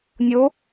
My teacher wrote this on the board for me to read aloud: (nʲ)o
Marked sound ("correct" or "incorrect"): correct